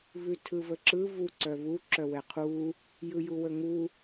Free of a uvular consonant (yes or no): no